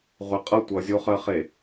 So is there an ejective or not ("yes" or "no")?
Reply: yes